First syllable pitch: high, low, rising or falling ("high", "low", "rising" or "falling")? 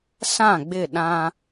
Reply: falling